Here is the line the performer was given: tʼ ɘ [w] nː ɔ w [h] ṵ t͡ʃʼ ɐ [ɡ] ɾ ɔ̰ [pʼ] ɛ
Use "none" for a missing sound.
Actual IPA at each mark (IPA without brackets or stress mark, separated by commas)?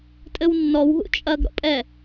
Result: w, ɦ, ɡ, pʼ